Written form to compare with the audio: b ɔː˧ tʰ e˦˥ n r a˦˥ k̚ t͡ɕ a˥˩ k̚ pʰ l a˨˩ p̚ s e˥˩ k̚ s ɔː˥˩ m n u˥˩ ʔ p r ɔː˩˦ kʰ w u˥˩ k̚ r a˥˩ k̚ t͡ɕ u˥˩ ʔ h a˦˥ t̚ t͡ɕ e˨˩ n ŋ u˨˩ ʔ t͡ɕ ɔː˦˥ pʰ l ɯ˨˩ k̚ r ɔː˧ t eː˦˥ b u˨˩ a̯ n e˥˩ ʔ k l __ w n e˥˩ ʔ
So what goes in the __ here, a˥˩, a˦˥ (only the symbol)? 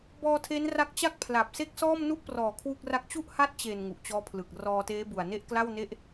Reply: a˥˩